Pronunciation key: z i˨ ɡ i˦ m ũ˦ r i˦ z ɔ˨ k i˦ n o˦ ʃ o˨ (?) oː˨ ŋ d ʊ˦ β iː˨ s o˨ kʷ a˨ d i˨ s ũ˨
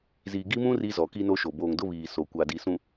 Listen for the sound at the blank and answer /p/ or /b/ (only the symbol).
b